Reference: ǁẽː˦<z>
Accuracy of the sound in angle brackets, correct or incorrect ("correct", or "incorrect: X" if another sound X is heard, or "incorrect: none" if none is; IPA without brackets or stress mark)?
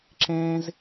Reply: correct